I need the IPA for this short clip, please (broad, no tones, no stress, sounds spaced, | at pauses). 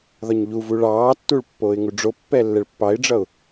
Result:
ð ɒ ɲ ʎ u v u ɭ ɑː tː u ɭ pː oː ɪ̯ ŋ u ɖ͡ʐ o pː ɛ lː ɛ ɭ pː ɑ ɪ̯ ɖ͡ʐ ʌ ʊ̯